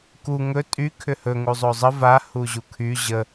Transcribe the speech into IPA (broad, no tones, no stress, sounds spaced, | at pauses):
k u ŋ ɵ tʼ y kʰ ʏ h ɵ ŋ u zˤ o zˤ ə v a h u ʑ u kʰ y ʑ ə